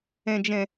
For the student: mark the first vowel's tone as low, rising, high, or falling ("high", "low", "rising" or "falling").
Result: low